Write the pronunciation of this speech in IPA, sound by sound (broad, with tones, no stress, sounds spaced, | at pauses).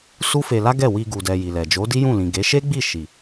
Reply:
s u˦ f e˧ l a˦ ɡ ɛ˦˨ w i˧ ɡ u˨ d ɛ˨ j i˨ l ɛ˨ d͡ʒ o˨˦ d i˦ j ũ˦˨ l ĩ˨ ɡ e˨˦ ʃ e˦ ɡ͡b i˦˨ ʃ i˨